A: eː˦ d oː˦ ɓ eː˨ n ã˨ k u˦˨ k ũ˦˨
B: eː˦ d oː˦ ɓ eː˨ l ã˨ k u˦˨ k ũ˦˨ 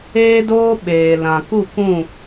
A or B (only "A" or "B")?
B